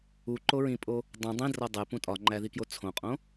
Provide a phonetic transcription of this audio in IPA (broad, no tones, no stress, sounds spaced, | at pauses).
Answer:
u ǃ o ɹ ĩ pʼ o | dˤ ũ dˤ ĩ d r ɒ dˤ e p ũ tʼ ɒ ŋ͡ǃ æ ð i k j o t͡sʰ õ qʼ õ